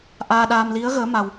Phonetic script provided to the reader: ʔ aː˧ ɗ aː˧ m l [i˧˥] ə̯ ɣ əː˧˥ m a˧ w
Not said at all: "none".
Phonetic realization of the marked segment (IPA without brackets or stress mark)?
i˧˥